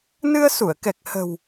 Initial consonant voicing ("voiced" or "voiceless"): voiced